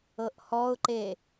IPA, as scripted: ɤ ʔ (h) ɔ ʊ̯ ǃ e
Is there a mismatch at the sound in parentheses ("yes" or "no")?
no